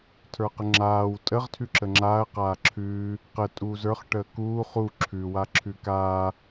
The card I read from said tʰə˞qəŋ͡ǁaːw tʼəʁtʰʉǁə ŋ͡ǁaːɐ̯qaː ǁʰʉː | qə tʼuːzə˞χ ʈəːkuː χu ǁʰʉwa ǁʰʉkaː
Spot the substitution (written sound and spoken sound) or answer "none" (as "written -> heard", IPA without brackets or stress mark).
none